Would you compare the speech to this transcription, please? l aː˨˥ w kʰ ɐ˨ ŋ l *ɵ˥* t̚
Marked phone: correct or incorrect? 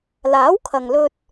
incorrect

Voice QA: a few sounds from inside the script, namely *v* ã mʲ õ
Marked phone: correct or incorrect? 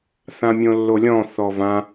incorrect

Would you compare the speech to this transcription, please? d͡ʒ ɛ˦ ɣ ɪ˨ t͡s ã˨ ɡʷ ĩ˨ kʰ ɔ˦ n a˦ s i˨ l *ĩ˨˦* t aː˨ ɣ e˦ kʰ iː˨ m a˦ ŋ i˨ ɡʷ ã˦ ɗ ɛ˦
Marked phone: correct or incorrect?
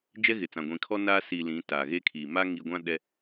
correct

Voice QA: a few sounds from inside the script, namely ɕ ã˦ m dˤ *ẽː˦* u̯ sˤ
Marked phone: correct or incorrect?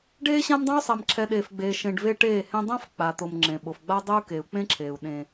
incorrect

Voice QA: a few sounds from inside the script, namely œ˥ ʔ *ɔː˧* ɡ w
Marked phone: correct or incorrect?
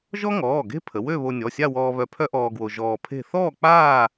correct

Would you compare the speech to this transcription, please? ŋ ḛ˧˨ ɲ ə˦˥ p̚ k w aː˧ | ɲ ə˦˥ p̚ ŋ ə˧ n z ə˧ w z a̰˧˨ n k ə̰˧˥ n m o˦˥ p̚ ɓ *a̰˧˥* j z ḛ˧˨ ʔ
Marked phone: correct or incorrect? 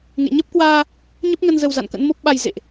incorrect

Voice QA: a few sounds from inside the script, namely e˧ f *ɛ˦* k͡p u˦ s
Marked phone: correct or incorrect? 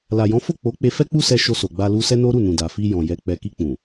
correct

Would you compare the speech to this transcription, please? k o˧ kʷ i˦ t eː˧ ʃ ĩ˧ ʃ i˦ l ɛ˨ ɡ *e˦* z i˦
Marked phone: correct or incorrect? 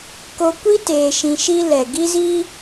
incorrect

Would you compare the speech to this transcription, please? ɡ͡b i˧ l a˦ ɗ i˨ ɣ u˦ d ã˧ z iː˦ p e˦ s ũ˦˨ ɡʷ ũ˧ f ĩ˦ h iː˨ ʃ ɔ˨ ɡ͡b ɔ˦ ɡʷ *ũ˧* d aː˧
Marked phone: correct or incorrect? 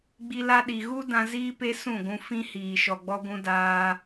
correct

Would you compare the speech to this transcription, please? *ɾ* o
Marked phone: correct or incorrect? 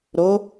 correct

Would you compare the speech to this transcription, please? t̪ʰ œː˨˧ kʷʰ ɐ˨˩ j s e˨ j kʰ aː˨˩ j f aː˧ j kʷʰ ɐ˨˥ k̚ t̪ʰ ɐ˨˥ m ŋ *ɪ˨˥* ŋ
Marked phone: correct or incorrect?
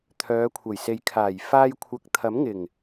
incorrect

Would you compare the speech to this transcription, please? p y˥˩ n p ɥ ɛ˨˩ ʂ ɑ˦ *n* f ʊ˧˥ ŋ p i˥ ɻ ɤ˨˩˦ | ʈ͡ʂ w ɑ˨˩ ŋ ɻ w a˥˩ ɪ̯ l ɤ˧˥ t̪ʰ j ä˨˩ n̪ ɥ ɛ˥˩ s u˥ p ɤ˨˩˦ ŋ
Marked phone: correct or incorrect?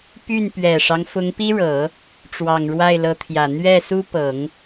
incorrect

